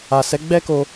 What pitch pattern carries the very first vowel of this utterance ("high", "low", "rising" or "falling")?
low